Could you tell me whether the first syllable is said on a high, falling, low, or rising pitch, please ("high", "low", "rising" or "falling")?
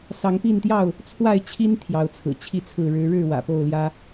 rising